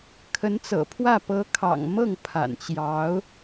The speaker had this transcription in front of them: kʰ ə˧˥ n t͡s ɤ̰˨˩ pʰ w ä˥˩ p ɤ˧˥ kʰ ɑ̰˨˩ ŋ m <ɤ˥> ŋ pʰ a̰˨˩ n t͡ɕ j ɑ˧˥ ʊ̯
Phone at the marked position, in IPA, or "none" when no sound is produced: ɤ˥˩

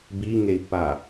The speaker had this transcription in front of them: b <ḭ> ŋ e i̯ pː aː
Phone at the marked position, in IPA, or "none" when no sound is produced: i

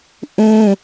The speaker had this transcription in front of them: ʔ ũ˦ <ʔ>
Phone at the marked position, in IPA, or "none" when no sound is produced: none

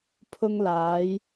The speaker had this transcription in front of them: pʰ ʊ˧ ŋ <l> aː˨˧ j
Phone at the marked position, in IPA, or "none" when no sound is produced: l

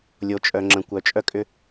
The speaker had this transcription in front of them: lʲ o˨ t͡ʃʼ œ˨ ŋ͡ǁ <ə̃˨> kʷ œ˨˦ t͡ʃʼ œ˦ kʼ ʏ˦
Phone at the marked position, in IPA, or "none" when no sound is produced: ə̃˨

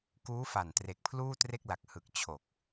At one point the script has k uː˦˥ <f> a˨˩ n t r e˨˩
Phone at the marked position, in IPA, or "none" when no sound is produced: f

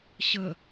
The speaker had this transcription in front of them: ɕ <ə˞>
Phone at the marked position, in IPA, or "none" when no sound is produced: ə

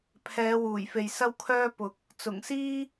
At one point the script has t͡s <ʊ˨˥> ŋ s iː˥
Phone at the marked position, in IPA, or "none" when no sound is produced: ʊ˨˩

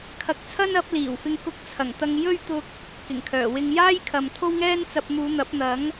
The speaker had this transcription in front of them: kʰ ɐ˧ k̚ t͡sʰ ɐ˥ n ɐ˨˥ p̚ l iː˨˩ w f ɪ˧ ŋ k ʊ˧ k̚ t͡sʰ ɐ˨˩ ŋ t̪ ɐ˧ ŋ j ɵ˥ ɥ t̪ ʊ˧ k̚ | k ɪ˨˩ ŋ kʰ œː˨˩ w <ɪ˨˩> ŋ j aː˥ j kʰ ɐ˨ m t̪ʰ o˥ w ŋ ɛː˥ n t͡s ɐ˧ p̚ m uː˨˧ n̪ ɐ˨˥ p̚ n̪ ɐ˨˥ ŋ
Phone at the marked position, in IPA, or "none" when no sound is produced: ɪ˧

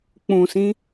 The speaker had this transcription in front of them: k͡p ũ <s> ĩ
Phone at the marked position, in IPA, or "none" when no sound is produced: s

